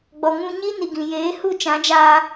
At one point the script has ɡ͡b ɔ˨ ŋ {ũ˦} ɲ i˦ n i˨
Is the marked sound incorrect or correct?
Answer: incorrect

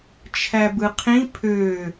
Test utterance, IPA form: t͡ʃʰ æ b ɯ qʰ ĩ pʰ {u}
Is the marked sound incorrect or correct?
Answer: incorrect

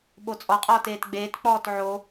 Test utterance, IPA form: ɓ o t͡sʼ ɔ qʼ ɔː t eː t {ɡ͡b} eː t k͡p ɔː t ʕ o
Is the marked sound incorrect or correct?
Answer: correct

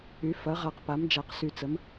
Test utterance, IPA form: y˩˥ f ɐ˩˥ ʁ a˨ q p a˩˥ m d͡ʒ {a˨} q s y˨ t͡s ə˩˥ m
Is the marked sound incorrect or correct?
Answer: correct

